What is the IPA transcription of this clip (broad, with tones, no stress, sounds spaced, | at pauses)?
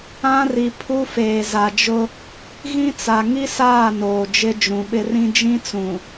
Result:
ã˦ r i˨ pʰ u˦ f eː˨ z a˨ d͡ʒ ʊ˦ | ɣ ĩ˦ t͡s a˨ ŋ i˦ s aː˦˨ n oː˨ d͡ʒ ɪ˦ d͡ʒ ũ˨ ɓ ɪ˦ r ĩ˦ d͡ʒ ĩ˦ t͡s ũ˨